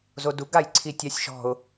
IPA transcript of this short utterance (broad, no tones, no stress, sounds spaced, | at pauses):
z o d u ɡ a j ǀʰ i tʲ a sʲ ʃ ɔ̤ ʊ̯